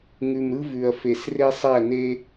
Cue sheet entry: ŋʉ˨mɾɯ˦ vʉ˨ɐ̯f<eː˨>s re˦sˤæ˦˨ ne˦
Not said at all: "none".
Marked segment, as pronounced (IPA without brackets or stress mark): e˨